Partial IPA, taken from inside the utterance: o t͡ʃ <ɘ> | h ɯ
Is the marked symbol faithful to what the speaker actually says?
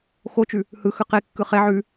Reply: no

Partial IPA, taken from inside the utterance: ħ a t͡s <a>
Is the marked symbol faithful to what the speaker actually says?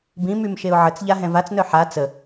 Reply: no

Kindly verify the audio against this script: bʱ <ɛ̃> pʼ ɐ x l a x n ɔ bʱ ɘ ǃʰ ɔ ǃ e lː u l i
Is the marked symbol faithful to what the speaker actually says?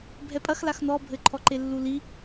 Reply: no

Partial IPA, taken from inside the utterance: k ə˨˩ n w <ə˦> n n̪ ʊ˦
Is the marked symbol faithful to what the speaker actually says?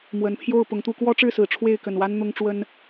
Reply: no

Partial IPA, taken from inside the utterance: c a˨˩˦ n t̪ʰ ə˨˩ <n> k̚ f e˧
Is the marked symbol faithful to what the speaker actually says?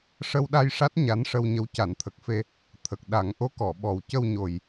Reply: no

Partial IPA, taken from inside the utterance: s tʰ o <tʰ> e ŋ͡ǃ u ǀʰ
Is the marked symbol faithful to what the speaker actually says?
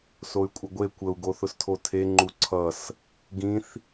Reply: yes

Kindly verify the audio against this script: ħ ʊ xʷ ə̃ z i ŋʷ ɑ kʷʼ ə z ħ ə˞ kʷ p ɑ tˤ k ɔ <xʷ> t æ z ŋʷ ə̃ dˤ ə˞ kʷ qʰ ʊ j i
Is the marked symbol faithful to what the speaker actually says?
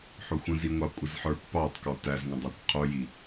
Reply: no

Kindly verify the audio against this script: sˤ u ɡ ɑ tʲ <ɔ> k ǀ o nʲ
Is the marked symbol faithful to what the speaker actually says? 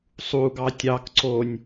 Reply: no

